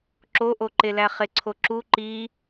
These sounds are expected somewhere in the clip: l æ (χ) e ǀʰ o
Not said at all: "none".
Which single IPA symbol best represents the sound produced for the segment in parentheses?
χ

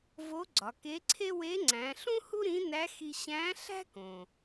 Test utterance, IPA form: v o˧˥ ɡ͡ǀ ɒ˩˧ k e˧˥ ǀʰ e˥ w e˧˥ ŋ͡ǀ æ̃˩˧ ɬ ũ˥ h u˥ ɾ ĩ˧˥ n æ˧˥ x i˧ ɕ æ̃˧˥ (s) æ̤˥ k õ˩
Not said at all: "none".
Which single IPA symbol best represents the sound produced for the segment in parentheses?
ɬ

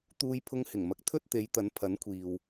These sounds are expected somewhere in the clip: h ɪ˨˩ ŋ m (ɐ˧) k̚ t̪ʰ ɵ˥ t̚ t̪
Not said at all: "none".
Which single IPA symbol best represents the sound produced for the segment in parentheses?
ɐ˨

